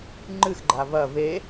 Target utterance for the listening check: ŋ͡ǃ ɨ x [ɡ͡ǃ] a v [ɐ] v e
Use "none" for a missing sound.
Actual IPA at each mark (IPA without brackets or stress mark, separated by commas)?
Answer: ɡ͡ǃ, ɐ